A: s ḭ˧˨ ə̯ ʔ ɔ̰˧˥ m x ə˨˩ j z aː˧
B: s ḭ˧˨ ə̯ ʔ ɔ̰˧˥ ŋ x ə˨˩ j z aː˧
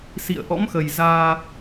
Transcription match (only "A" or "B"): A